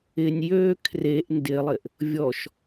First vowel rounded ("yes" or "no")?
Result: no